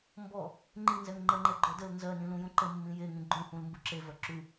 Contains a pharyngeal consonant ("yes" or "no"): no